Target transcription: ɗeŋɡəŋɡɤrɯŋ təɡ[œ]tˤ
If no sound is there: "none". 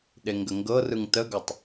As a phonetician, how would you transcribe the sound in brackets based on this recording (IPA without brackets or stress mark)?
œ